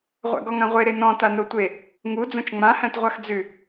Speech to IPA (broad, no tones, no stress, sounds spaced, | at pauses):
ʁʷ æ̰ ɡ ɔ ŋ ã ʁʷ e ɾ e n ɔ̃ t a n o tʷ e | ŋ u d͡z õ t͡ʃ ŋ͡m ã h æ̃ t ʁʷ a x d͡z ʉ